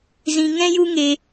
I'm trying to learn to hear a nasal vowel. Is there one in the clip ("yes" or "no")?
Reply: yes